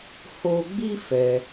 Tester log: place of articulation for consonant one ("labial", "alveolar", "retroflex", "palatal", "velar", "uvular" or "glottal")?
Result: glottal